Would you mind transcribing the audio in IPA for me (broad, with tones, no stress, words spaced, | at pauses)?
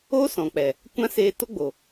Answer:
o˦sɔ̃˨k͡pɛ˨ | kʷã˦seː˧ to˦ɡ͡bo˨